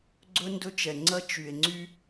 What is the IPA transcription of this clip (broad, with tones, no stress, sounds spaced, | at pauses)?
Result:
ɡ͡ǀ ɵ˦ n d ɵ˦ t͡ʃ ɛ˨ ŋ͡ǀ ɐ˦ t͡ʃ y˨ e̯ ŋ͡ǀ y˦